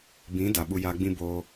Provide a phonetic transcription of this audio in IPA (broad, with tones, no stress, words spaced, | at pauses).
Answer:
bĩ˨˦ da˨ ɓu˧jaː˧ɡ͡bĩ˦ boː˧